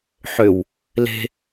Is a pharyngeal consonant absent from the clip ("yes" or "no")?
no